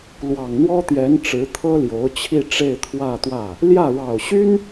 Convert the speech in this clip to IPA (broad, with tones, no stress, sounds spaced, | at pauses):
l w ɑ˨˩ ŋ n̪ w ɔ˥ t̪ j ɛ˧˥ n ʈ͡ʂ ɻ̩˧˥ t̪ʰ ɤ˥ l j o˧˥ ʊ̯ t͡ɕʰ i˥˧ ʈ͡ʂ e˥˧ ɪ̯ t̪ʰ w ä˥˧ t̪ w ä˥˩ | l j ä˥˩ ɻ ɑ˨˩ ʊ̯ ɕ y˥ n